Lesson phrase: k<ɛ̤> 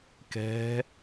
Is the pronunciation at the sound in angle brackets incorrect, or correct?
correct